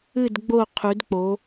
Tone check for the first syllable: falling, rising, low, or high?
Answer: falling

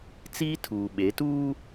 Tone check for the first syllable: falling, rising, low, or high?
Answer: high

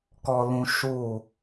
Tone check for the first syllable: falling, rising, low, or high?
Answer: high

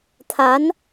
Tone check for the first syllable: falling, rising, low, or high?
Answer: rising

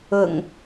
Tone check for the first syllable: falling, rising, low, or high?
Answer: low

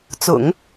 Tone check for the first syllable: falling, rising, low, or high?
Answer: low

